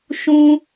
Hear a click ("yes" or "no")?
no